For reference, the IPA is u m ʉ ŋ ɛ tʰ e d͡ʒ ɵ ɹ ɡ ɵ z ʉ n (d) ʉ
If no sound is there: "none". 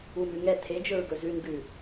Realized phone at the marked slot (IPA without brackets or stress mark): ɡ